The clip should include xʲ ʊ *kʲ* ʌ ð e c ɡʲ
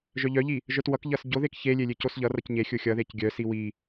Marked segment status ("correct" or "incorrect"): incorrect